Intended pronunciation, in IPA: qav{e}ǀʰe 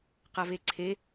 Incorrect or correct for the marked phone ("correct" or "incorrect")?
correct